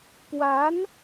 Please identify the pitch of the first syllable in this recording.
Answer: rising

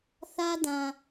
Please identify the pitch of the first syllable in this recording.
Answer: high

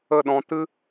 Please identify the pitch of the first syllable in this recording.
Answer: falling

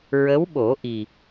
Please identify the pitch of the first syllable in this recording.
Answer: rising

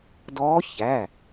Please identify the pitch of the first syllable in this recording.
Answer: rising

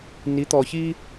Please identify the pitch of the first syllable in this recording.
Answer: rising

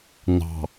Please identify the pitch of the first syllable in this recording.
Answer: low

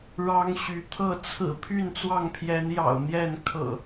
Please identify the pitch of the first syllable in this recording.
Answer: high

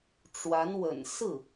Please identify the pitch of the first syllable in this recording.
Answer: rising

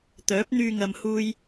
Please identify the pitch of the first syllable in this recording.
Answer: rising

